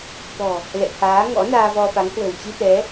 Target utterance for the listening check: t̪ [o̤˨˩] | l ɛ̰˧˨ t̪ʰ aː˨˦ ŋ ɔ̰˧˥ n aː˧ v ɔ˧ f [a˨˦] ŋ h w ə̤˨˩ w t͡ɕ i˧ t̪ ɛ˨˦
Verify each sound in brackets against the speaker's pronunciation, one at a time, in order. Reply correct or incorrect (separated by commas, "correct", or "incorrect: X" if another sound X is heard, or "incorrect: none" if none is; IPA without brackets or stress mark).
incorrect: ɔ̤˨˩, correct